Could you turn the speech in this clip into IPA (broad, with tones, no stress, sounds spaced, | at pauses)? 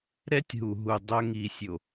ɾ ɛ˦ tʲ ɦ u˨ ɦ u˨ dˤ œ˦ ŋ i˨ sʲ o˨